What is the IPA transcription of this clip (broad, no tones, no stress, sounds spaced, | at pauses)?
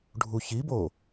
ɖʱ u ç i b o